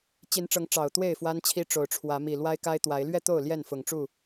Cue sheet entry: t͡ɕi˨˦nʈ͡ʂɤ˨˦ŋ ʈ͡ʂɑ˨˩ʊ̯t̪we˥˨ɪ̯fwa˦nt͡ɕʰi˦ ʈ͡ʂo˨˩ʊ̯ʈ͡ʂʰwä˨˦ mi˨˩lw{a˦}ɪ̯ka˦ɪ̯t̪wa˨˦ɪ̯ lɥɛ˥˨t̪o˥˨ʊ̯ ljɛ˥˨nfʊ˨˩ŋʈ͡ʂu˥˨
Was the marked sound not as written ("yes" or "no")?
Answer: no